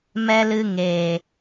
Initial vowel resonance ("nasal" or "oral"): oral